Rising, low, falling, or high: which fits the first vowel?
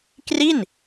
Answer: falling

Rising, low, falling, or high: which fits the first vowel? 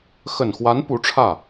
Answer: low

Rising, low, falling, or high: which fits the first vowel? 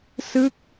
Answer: falling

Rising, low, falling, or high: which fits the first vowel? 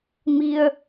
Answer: low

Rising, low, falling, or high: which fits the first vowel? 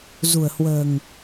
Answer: low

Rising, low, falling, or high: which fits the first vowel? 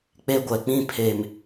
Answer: high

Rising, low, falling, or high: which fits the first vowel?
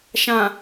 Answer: low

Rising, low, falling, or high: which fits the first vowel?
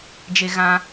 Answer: high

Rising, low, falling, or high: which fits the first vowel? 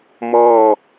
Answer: falling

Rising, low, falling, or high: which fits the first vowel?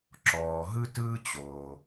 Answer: low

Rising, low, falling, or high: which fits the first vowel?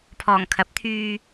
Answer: low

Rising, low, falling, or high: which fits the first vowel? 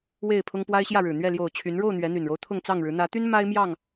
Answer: falling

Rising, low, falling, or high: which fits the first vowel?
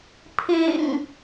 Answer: low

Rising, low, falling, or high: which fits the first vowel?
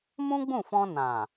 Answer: high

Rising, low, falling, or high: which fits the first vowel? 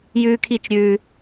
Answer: high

